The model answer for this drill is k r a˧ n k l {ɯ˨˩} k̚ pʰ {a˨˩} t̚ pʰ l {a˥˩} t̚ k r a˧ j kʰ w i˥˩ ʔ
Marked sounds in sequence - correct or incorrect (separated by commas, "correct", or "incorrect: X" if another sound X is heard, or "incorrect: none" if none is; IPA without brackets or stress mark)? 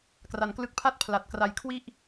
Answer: incorrect: ɯ˥˩, incorrect: a˥˩, incorrect: a˨˩